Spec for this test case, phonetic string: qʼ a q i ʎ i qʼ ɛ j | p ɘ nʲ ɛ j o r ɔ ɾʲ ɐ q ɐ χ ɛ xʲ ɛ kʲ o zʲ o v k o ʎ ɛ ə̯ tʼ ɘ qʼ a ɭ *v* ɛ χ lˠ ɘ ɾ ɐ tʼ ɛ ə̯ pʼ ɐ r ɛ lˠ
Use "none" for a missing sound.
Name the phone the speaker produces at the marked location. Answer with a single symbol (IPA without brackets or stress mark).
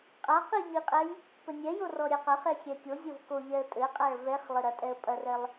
v